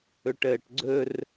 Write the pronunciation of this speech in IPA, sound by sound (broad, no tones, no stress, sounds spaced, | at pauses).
ɵ ʈ əː ʈ ɡ͡ǀ ɵ r